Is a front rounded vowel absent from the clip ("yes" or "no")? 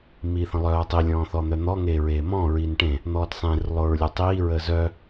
no